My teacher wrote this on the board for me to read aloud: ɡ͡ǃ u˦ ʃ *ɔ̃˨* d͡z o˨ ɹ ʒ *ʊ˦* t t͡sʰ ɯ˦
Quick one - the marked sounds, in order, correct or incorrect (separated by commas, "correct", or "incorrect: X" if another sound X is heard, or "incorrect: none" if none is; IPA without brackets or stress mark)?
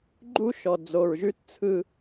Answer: incorrect: ɔ˨, incorrect: ʉ˦